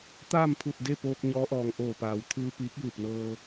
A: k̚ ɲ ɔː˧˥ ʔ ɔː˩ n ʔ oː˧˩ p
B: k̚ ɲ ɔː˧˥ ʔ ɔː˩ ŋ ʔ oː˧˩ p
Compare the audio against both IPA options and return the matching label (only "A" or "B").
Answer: B